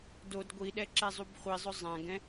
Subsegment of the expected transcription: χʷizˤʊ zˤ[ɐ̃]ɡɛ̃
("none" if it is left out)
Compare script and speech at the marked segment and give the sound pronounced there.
ã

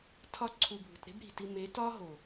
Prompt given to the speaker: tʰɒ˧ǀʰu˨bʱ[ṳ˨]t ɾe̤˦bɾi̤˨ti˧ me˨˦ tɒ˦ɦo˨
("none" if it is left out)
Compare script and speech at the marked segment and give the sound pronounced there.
ṳ˨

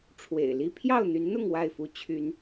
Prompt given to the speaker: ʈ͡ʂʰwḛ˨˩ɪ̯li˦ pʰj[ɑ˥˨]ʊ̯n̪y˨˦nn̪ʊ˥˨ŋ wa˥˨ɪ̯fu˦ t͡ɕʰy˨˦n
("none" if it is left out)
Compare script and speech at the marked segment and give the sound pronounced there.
ɑ˥˨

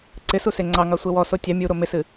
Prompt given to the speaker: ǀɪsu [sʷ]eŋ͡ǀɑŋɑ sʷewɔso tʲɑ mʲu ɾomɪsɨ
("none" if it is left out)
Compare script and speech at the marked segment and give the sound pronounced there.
s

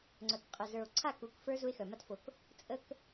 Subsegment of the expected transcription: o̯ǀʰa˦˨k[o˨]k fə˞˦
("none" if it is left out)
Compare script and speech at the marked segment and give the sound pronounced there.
u˨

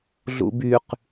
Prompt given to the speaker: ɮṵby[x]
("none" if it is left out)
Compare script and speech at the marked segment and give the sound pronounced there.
q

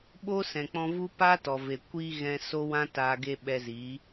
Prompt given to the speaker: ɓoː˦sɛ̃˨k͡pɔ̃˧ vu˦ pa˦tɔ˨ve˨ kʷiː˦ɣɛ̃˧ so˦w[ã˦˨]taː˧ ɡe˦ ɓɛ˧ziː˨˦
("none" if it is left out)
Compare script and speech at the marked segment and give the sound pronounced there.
ã˦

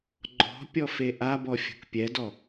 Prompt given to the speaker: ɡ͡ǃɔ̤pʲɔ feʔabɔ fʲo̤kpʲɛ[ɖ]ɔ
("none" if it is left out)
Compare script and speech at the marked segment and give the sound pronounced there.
d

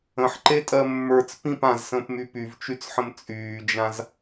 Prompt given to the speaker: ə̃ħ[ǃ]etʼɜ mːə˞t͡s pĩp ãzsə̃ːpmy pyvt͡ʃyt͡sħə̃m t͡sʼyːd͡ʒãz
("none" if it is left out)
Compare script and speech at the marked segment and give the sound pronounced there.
ǃ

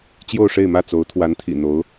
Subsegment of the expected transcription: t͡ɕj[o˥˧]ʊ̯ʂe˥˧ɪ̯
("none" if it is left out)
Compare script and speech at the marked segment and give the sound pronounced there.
o˥˧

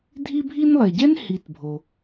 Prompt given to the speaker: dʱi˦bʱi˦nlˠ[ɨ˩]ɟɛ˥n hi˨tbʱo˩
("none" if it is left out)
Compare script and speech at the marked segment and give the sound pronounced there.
e˩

